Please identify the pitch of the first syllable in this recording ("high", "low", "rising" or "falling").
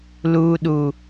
low